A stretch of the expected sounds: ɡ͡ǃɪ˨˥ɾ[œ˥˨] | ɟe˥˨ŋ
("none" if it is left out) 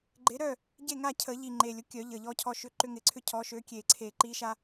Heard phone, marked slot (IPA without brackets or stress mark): œ˥˨